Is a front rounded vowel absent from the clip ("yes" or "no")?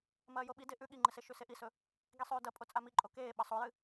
yes